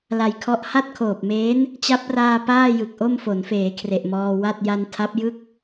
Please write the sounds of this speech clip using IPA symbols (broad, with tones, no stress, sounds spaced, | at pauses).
l a˨˩ j kʰ ɔ˦˥ ʔ h a˥˩ t̚ kʰ oː˨˩ p̚ m eː˦˥ n | t͡ɕ a˦˥ p̚ r aː˧ p aː˥˩ j ɯ˨˩ k̚ ʔ o˥˩ m f o˩˦ n f eː˩˦ kʰ r e˨˩ ʔ m ɔː˧ w a˥˩ t̚ j a˧ n tʰ a˦˥ p̚ j ɯ˥˩ k̚